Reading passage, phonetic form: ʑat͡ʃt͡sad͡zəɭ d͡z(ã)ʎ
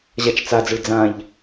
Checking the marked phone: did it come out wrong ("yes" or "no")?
no